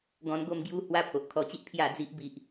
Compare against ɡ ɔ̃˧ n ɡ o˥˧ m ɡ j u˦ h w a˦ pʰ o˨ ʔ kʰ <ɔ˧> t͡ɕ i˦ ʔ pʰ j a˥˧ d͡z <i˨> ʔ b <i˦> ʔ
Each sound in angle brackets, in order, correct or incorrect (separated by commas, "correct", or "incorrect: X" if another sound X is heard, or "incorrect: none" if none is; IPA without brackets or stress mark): correct, incorrect: i˦, correct